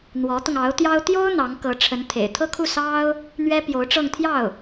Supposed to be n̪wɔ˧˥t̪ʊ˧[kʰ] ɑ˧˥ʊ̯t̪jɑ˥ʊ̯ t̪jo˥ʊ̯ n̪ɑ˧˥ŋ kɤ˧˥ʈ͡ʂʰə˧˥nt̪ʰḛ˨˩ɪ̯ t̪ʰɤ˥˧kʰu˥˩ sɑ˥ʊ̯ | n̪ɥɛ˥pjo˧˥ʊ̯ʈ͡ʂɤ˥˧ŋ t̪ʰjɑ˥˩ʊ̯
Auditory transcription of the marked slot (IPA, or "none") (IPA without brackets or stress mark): ŋ